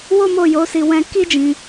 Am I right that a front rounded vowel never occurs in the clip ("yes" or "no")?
yes